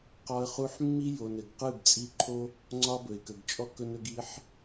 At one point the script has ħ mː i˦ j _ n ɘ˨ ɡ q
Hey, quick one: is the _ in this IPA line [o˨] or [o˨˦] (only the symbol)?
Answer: o˨